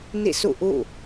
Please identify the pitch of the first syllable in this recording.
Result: falling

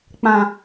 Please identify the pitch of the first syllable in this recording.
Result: low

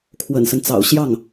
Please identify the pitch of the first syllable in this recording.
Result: low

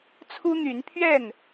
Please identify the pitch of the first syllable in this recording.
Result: high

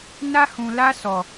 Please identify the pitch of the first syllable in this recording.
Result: high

